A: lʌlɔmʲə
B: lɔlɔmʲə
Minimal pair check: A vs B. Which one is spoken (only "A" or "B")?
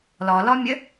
B